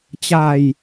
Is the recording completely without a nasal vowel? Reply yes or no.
yes